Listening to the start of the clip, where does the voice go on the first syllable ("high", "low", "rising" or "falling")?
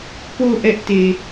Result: falling